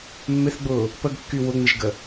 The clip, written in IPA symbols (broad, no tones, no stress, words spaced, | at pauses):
mːɪθɡ͡bʊː | pəɡkːy wʊŋ͡mɪʒɡə